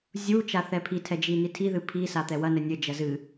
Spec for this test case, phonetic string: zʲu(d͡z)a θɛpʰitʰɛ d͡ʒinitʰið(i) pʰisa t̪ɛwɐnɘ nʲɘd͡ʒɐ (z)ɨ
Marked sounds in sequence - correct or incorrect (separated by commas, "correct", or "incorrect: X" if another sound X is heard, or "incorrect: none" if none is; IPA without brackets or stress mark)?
incorrect: t͡ʃ, incorrect: ɨ, correct